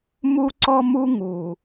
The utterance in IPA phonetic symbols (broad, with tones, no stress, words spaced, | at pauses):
mu˥ǀɔ˥mu˥ ŋu˨˩